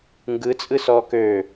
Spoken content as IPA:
ŋ ɡ ɯ t͡sʼ ɯ s ɔː k ø

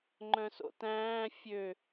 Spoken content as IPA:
ŋ͡ǃ œ̃ s o̰ t æ̃ː fʲ ø

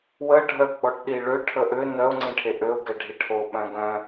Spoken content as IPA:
w ə ɖʱ œ ɡ͡b ɔ ʈ ɗ i ɭ ø ʈʰ ə ʔ ø n œ ʊ̯ ŋ͡ǀ ĩ ʈʰ e ʔ ø ʊ̯ ɡ ɛ ɖʱ i ʈʰ o ɓ œ̃ ɡ œ̃

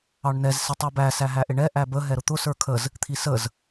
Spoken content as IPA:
ɑ ɳ n ɛ z s ɪ tˤ i b æ s æ ɦ æ ʔ ɪ ɳ ɛ ʔ æ b ə ɦ ɛ ɾ ʊ t̪ ʊ s ə˞ kʰ ə z | t̪ʰ i s ə z

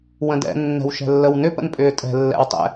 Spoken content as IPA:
w ə̃ d ɛ̰ nː ɛ̤ w ʃ ɛ̤ lː ə w n ʏ p ə̰ n pʼ ʏː tʼ ɛ̤ lː ɛ̰ w tˤ ɛ̰

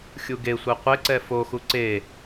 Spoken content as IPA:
xʲ u ɡ e sʷ ɛ qʷ e ǀ ɛ f o x u ǀ e

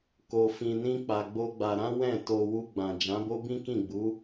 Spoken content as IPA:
k o˧ f ĩ˧ n ĩ˦ k͡p a˧ ɡ͡b o˦ ɡ͡b a˧ ɾ ã˦ w ɛ̃˦˨ t o˧ w u˧ ɡ͡b ã˨ d͡ʒ ã˨˦ b o˦ b ĩ˦ k ĩ˦˨ ɡ͡b u˨˦

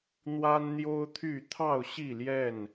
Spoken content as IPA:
n̪ w a˦ n n̪ j o˦ ʊ̯ t̪ʰ y˥˨ t̪ʰ ɑ˥˨ ʊ̯ ɕ i˥˨ l j ɛ˥˨ n

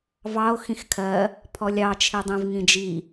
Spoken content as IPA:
v ɑ o̯ x ĩ x kʰ ɜ | pʰ ɔ lʲ ɑ t͡ʃʰ i dˤ ĩ v ŋ ĩ d͡ʒ i

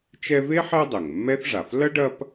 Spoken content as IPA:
t͡ʃ ɛ˦ v e˥ ħ ɛ˦ dˤ ɘ˩ ŋ mː ɛ˥ θ ʐ a˩ f l ɐ˥ ɖ ɐ˦ p

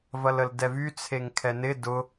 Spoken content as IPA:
v ɐ l ə l d ɛ v y t͡sʰ e ŋ kʰ ɛ n ɪ d ʊ

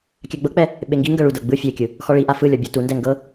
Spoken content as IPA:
kʲ a ɡ͡b ɤ k͡p ɛ | ɓ e ŋ ɡ i ŋ ɡ ɤ ɭ u d ɤ ɡ͡b ɯ fʲ e kʲ ɯ | x ɔ ɭ i ʔ a f ɯ lʲ ɔ bʲ ɔ t u n d ɛ ŋ ɡ ɤ

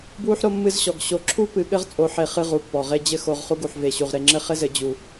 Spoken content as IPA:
b w u˦ ħ ɾ o˦ mː ɨ˦ z ɕ ɔ˨ ɡ ɕ o˨ ǁʰ u˦ p ɨ˨ ɠ ɘ˦ ʁ t͡sʼ o˨˦ ħ e˨ χ ɨ˦ ʁ u˨ pː ɔ˨ ʁ e˦ d͡ʑ ɘ˦ x o˨ ʁ χ u˦ ɡ u˨ ħ v e˨ ɕ u˨ ʁ ɾ e˨ ŋ͡ǁ ɘ˦ χ ɘ˦ z ɘ˨˦ d͡ʑ u˨

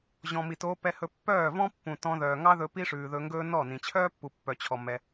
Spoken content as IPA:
ʑ ɔ̃˨ m i˨ t oː˧ p ɛ˧ h ɵ˧ pː œː˦˨ v ɔ̃˦ pː ũ˨ t ɔ̃˧ ð œː˨ ŋ ɑ˦ ð ɵ˧ p i˦ ʂ ʉː˨ ð ɵ˧ ŋ ɡ ɵː˦ n ɔ˦˨ n ĩ˨ t͡ɕʰ œː˦ pː u˨ pː œ˨ t͡ɕʰ ɔ˨ m ɛ˧

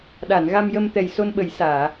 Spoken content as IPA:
ɗ a˨˩˨ n ɣ a˧ m j ə˧ m t̪ ɛ˨˩ j s o˧ n ɓ ə˨˩˦ j s aː˨˩˨

